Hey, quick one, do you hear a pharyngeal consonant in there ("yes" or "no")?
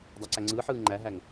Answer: yes